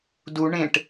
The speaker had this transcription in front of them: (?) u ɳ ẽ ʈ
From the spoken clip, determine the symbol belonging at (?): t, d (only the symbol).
d